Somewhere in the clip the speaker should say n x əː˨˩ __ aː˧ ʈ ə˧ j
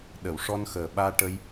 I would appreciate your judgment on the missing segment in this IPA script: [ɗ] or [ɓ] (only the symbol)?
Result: ɓ